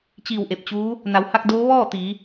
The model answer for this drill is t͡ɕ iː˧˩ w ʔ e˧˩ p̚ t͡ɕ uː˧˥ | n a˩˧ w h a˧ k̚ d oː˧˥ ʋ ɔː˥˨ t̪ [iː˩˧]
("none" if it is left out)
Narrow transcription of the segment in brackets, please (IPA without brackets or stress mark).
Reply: iː˩˧